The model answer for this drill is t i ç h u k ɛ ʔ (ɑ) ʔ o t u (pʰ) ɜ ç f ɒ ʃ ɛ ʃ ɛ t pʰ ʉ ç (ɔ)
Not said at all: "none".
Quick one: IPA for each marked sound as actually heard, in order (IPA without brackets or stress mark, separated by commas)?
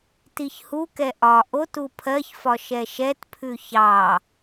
ɒ, pʰ, ɑ